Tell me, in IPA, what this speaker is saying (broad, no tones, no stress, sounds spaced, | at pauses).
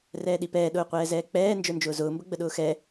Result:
r ɛː ɗ i p ɛː ɗ ʊː qʷ ɛː z ɛː k͡p ɛː n d͡ʒ ə˞ n d͡ʒ ʊː z ʊː m b ə ɡ͡b ə ɗ ʊː x ɛ